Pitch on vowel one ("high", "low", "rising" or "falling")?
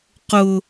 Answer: high